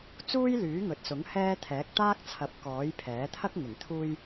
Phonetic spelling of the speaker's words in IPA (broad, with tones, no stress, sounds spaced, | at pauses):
t͡s uː˥ j l yː˨˥ ŋ ɵ˨ t̚ s ʊ˨˥ ŋ h ɛː˧ t̪ʰ ɛː˨˥ k̚ t̪ aː˥ k̚ t͡sʰ ɐ˨˥ p̚ k ɔː˨˥ j pʰ ɛː˨˥ t̪ʰ ɐ˥ k̚ ŋ ɪ˨˩ ŋ t̪ʰ uː˧ j